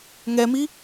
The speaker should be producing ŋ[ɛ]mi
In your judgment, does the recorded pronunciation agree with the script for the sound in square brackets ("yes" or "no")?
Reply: yes